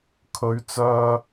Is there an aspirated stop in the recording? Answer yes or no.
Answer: yes